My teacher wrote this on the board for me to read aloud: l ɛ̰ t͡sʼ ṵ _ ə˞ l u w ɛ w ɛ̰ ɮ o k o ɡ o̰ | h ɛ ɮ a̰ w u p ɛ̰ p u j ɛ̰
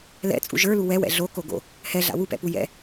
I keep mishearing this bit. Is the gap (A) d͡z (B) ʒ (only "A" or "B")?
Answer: B